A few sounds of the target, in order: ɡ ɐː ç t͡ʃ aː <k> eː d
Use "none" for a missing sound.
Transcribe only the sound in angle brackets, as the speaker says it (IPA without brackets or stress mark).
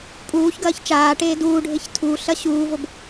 ʈ